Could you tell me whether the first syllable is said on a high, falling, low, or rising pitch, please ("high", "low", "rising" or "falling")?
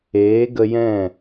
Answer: rising